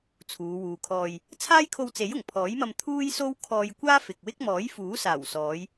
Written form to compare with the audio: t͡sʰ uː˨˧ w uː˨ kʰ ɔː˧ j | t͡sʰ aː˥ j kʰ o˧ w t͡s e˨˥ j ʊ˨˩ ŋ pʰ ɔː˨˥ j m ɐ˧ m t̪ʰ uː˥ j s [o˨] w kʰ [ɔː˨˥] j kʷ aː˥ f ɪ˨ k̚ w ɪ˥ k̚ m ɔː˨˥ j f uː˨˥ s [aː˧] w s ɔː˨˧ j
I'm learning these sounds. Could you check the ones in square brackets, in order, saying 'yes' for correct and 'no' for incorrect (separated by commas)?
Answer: no, no, no